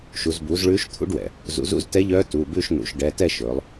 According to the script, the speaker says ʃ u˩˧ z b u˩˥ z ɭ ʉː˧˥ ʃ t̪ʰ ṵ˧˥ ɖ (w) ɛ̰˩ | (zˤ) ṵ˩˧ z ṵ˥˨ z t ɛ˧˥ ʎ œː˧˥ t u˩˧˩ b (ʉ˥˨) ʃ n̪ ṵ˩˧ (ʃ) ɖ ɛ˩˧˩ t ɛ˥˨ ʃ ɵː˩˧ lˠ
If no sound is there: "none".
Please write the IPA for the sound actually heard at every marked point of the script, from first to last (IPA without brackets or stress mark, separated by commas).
w, z, ʉ˥˨, ʃ